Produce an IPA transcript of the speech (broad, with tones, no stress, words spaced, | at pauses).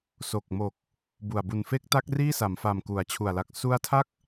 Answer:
so˨˩k̚mo˨˩k̚ | bu˨˩a̯ bu˨˩nfe˦˥k̚ta˦˥k̚ riː˥˩sa˩˦mfa˨˩m ku˩˦a̯t͡ɕʰu˨˩a̯la˨˩k̚ su˦˥a̯tʰa˥˩k̚